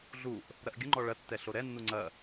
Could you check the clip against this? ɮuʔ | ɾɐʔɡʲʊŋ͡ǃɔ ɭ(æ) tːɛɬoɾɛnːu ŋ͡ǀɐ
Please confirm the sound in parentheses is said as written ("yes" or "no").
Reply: no